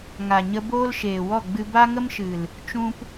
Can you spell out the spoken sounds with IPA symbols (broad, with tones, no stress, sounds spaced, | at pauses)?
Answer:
ŋ a˨ ɲ ə˧ b oː˦ l ʃ eː˨ w ɔ˦˨ ɡ͡b ɨ˧ b a˦ ŋ ə˦ m ʃ ɨ˨ l | t͡ʃ ũ˦ p